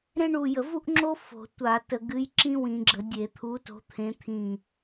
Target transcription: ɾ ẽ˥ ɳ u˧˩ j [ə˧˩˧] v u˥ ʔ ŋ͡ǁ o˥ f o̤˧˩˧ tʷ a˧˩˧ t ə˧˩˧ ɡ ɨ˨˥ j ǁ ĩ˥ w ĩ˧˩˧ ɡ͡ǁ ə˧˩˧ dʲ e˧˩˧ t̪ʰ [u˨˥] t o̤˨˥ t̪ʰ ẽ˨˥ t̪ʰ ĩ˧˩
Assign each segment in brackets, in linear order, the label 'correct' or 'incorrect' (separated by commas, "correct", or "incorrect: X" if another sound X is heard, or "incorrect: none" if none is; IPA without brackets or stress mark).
correct, correct